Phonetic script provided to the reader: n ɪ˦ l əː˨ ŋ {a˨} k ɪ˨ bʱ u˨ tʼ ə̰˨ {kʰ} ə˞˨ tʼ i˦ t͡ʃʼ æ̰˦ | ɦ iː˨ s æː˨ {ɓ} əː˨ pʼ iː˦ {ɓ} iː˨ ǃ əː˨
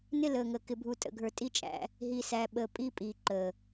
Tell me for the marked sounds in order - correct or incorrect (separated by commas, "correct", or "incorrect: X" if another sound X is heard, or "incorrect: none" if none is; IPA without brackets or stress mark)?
incorrect: ə˨, incorrect: ɡʱ, correct, incorrect: pʼ